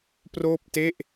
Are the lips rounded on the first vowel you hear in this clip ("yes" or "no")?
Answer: yes